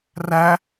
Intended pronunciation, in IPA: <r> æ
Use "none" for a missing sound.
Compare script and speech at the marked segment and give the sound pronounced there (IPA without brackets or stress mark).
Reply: r